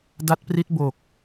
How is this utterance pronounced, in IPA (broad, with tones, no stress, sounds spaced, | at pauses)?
d a˦˥ t̚ p r i˦˥ t̚ b o˨˩ k̚